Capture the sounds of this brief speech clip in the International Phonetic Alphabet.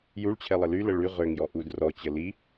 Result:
j u ɭ t͡ɕʰ ɛ lˠ ə l y l ə ɭ y ʁ ø ŋ j ɔ ʔ u d r ɔ t͡ɕ ə l i

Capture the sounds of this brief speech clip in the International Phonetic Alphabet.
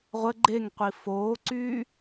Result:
ʁʷ ə ɡ͡ǃ e ŋ qʷ i f oː ǀ yː

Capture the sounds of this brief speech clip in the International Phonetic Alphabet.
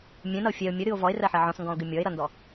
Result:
mʲ ɛ̃ n ʌ o̯ fʲ ɛ o̯ mʲ ə ɾ ɨ o̯ v ɔ e̯ r ɜ ħ ɜ ʕ ɔ̃ s ŋ ɡ ɔ̃ o̯ ɡ ɨ mʲ ɔ e̯ ɾ ʌ n d ɔ

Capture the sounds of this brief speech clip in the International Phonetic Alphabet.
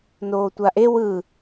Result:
n oː tʷ a ʔ e w ɯ

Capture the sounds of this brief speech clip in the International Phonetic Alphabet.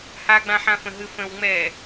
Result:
h a ɡ͡b ã ħ ã f ə̃ ɦ ɨ f ə̃ w ŋ͡m ɛ

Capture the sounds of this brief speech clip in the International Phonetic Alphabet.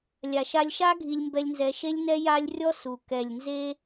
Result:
lʲ a˧ ʃ a˦ lʲ ʃ a˦ ɡʱ i˧ lʲ m b ɛ˧ lʲ n z ɛ˧ ʃ e˦ lʲ n ɛ˦ j a˦ lʲ rʲ ɔ˦ s u˨ k ɛ˨ lʲ n z e˧

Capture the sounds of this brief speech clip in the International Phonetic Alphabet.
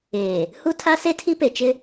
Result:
eː˨ | h u˦ tʰ a˦ s e˦ tʰ i˦ p e˨ t͡ʃ ɪ˦

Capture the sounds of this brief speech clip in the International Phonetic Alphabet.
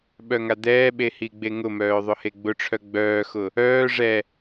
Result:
ɓ œ ŋ a d̪ ɛː ɓ e h i ɡ͡b e ŋ ʊ m œː ðˤ ʊ h e ɡ͡b ʊ ʈ͡ʂʰ œ ɡ͡b œː x ʊ | œː ʐ ɛ

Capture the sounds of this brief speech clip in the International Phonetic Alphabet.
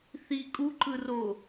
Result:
θ i kʼ u ǃ ɯ r o

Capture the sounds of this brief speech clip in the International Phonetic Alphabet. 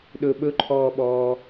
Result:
ɗ ɵ ɓ ɵ ǃʰ ɔː ɓ ɔː

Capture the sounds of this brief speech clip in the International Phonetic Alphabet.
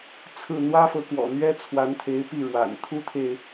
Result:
t͡sʰ ɹ̩˥˩ n̪ w ä˥ f ɤ˧˥ k w ɔ̰˨˩ n̪ ɥ ɛ˥ t͡sʰ w a˧˥ n t̪ʰ e˧˥ ɪ̯ p i˥˩ ɻ w a̰˨˩ n t̪ʰ u˥ t̪ʰ e˨ ɪ̯

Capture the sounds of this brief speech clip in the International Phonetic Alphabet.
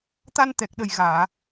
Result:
t̪ a˧ n t̪ ɛ˨˩ k̚ ɗ ə˨˩ j ɣ aː˨˩˨

